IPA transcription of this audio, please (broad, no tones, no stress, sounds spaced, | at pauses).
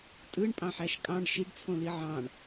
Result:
tʼ ɯ ɳ pʼ ɑ̃ ħ æ ʃ kʼ ɑ̃ ɖ ʃ i ɖ t͡sʰ õ l i ʕ ɑ̃ ɳ